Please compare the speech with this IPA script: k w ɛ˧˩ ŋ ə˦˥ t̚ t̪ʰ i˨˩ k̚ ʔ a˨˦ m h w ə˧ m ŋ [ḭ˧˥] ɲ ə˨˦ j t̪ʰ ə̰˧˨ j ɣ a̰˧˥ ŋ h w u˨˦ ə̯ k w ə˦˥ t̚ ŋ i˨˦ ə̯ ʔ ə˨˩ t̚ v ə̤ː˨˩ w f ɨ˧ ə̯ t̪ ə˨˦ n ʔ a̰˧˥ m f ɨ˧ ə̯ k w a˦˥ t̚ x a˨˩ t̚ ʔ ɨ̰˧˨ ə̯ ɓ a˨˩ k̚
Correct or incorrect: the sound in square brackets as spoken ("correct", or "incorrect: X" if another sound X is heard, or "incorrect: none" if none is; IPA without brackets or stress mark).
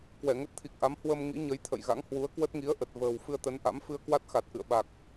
correct